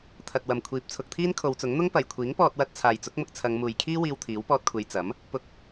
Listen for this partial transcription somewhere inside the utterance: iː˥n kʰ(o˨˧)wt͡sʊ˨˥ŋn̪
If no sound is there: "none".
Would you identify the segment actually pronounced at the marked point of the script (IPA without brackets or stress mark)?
o˨˧